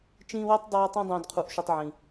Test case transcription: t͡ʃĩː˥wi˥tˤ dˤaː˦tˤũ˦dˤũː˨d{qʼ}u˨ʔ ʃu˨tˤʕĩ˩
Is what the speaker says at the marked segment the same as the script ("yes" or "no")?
no